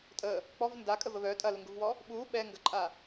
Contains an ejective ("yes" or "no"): yes